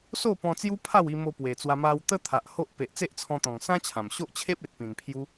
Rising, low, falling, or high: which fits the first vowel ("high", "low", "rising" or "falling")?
falling